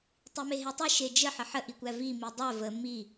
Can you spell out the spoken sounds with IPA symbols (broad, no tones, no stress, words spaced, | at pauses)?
tˤimeɦetˤe ʃed͡ʒə ħəħə ʔikʷævi midˤæ və mi